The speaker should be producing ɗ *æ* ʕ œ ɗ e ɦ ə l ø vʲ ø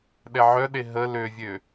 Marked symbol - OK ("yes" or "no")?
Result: no